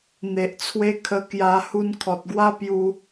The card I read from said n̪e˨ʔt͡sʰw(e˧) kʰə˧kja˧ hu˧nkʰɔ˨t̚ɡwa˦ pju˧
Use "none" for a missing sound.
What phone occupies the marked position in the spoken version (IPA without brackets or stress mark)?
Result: e˦